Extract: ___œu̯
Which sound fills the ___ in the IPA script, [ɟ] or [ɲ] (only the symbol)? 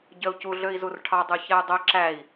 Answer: ɟ